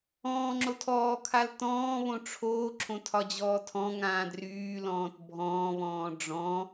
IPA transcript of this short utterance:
ɔ̃ː ŋ͡ǁ o tʰ ɔː kʰ a l t ɔ̃ː β õ ʈ͡ʂʰ oː ǁʰ õ tʰ ɒ d͡ʑ ɔː tʰ ɔ̃ ŋ ãː d r yː l ɔ̃ː t bʱ ɔ̃ː β ɔ̃ː ɖ͡ʐ ɔ̃

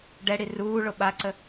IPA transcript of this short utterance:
ɖ ɛ ɽ i r uː ɭ o ɓ a ǀ ə

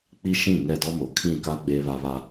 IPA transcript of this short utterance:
k͡p i˦ ʃ ĩ˦˨ ŋ ɛ˦˨ d ɔ˦ m o˨ kʰ ĩ˦˨ k a˦ ɡ͡b eː˦ β a˦ β a˦

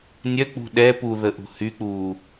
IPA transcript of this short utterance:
nʲ œ k͡p ṳ ɗ ɛ p u ð ə ʔ ṳ h y k͡p uː

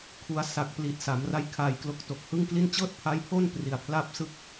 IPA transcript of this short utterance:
kʰ u˧ a̯ s a˨˩ k̚ p l i˨˩ t̚ s a˩˦ m r a˦˥ j kʰ aː˧ j k l o˦˥ k̚ t o˨˩ k̚ h ɯ˥˩ ŋ k l i˥˩ n t͡ɕ ɤː˥˩ t̚ pʰ a˦˥ j pʰ o˥˩ n p r i˨˩ a̯ pʰ l a˥˩ p̚ s ɯ˥˩ k̚

